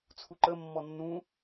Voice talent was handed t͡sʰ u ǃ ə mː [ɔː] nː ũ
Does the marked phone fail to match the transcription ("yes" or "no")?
yes